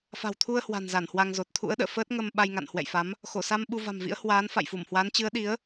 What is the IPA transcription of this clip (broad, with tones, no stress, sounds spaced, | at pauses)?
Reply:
f a̤˨˩ w t̪ʰ u˧ ə̯ h w a̤˨˩ n z a˧˩ n h w a˧ ŋ z o˨˩ t̚ t̪ʰ ṵ˧˥ ə̯ ɗ ə̰ː˧˨ f əː˦˥ t̚ ŋ ə˧ m ɓ a˧ j ŋ a̰˧˨ n h w ɛ̰˧˨ j f a˨˦ m | x o˧˩ s a˧ m ɓ u˧ v a̤˨˩ m v ḭ˧˥ ə̯ h w aː˨˦ n f a̰˧˨ j f u˧˩ m h w aː˨˦ n t͡ɕ ɨ˨˦ ə̯ ɗ i˨˦ ə̯